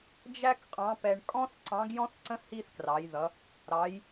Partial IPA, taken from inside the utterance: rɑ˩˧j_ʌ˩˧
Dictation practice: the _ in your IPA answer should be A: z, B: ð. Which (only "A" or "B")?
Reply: B